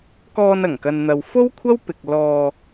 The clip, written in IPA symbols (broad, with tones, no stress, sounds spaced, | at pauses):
k ɔː˧ n ɐ˨˩ ŋ k ɐ˨ n n̪ ɐ˨ w f o˥ w kʷʰ ɐ˥ w p ɪ˧ k̚ l ɔː˧